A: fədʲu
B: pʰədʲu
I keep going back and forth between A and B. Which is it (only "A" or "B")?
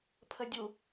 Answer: B